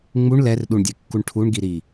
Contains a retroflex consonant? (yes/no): yes